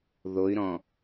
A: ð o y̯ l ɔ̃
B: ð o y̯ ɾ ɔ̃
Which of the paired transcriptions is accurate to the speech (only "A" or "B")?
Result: B